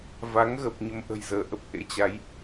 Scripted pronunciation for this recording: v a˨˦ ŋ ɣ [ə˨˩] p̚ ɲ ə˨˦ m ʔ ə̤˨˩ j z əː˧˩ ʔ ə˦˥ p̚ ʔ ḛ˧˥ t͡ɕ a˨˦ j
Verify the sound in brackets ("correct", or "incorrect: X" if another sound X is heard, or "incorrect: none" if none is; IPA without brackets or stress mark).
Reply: correct